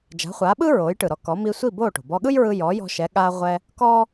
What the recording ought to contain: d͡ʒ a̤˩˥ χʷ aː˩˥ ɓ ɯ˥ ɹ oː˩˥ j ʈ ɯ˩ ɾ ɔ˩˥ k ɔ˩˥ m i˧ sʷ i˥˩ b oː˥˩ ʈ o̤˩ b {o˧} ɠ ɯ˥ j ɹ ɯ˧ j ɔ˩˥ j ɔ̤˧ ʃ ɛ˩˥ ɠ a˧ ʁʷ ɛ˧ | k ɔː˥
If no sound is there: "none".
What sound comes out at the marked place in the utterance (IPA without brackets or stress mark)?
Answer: ɔ˧